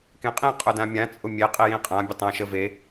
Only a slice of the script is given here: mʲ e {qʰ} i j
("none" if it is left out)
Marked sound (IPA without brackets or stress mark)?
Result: qʼ